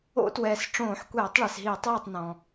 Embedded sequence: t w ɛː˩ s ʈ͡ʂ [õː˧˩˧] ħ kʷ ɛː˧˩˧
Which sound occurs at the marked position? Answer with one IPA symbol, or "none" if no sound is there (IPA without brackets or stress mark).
õː˧˩˧